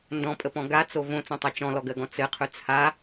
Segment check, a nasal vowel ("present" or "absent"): present